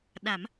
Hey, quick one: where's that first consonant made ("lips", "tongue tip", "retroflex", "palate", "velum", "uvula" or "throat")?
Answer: tongue tip